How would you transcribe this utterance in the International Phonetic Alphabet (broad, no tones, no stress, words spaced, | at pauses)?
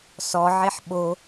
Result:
sɔ ʕeħɓo